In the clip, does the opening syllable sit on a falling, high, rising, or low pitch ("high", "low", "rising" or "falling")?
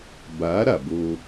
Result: rising